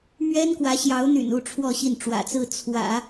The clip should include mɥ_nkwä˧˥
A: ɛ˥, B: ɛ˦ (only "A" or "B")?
A